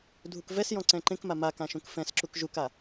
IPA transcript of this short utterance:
dʱukvɛsjɔ̃ ǀɛ̃ǃẽkma makã ʃũkfɛ̃sǁuk ʒuka

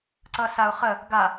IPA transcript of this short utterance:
ǀʌsaʊ̯χə | ɡa

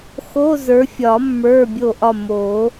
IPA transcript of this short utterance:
xo˧˥˧zə˞˨˦fʲɒ˨˩˦ mːə˞˧˥˧bʲo˦˨ʔɒ˦˨ mo˨˩˦

